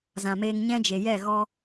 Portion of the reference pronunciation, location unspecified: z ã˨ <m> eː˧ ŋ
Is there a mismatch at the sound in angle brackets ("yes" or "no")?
no